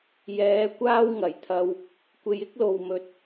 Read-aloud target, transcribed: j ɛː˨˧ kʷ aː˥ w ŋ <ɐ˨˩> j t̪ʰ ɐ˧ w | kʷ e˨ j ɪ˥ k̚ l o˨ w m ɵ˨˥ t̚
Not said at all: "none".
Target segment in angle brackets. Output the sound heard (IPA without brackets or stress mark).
ɐ˨˩